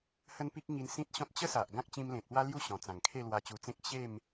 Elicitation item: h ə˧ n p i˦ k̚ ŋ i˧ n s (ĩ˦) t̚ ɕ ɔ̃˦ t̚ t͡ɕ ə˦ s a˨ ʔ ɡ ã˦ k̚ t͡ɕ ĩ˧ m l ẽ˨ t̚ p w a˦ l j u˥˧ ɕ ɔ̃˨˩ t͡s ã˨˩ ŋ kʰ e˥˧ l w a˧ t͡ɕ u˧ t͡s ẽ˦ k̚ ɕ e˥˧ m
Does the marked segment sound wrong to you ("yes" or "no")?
no